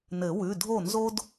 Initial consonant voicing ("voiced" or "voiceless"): voiced